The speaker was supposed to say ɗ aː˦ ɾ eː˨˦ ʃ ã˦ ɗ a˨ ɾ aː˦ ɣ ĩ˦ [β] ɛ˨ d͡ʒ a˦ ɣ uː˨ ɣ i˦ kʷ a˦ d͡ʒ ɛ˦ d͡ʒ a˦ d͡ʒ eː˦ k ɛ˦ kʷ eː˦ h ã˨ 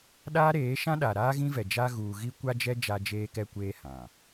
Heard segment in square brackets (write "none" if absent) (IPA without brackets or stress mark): v